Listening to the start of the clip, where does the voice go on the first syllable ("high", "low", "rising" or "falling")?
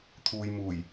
low